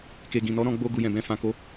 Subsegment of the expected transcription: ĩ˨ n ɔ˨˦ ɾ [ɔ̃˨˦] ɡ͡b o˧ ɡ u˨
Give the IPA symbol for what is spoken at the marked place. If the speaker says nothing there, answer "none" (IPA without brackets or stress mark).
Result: ɔ̃˧